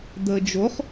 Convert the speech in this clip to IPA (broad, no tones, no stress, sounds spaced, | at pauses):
d̪ əː d͡ʒ o χ